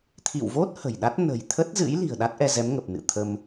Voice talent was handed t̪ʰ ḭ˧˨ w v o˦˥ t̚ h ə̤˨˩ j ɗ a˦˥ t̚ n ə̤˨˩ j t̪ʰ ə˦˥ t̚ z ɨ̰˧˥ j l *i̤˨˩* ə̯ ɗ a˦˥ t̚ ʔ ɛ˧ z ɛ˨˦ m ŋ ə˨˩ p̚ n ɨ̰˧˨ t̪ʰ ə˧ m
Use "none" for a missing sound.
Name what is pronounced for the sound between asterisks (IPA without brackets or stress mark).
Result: i̤˨˩